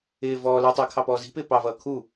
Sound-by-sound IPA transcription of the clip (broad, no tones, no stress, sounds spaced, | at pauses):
ɪː v ɔː l ɛ tˤ ɛ kʰ ɑ p ɔː z i̤ p ɪː p ɑ v ʌː kʰ u